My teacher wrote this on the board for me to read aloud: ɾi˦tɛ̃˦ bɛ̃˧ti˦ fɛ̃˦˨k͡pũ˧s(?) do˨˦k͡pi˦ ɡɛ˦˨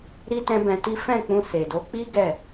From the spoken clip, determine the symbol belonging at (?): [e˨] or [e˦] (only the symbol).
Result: e˨